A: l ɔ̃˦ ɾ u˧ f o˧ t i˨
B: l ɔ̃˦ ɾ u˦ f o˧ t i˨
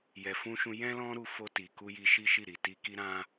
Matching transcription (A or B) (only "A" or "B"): A